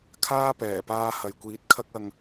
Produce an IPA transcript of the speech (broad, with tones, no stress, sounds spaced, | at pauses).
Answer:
kʰ aː˥ p ɛː˨˩ p aː˧ h ɐ˨ j kʷ iː˨˥ t̚ kʰ ɐ˥ k̚ ɐ˧ ŋ